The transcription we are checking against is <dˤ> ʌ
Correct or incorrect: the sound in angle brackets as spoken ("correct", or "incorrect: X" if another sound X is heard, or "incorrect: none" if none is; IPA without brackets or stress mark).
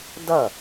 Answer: incorrect: d